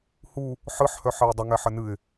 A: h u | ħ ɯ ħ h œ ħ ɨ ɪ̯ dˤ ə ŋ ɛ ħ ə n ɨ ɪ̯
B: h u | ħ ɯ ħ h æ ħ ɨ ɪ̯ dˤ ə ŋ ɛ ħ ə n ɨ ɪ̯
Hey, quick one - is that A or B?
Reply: A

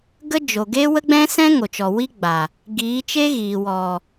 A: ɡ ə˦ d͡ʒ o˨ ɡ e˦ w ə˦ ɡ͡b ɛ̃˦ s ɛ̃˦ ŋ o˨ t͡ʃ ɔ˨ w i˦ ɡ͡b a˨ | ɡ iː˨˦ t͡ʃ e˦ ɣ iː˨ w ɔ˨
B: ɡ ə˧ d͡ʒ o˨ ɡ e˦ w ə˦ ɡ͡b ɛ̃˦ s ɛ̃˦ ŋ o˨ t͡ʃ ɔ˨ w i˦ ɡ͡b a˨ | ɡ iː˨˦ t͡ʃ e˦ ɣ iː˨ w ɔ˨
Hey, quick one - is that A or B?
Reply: A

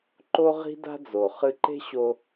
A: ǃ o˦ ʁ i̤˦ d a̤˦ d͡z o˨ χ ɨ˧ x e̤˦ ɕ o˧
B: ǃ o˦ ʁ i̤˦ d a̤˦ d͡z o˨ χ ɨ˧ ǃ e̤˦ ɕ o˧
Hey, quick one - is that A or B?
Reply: B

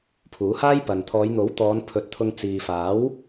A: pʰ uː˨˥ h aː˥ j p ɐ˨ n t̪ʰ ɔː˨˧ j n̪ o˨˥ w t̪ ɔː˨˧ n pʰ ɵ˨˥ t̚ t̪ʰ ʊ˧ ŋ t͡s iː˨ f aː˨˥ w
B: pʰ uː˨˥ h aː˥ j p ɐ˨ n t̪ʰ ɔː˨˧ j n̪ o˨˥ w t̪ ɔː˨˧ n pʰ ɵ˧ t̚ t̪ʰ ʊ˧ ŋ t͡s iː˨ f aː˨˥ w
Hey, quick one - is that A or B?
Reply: A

